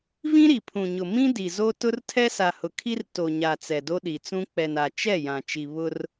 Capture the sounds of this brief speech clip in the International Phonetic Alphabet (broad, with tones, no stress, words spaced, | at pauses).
vĩ˦ɾi˨pʰũ˨ɲʊ˨ mĩ˦di˨zo˦ tʊ˦rtʰɛ˦sa˨hʊ˨ kʰi˦r to˨ɲa˨ t͡sɛ˨do˦ɗi˨t͡sũ˦ k͡pɛ˨na˨ t͡ʃɛ˦˨ jã˨ t͡ʃi˨ βʊ˦r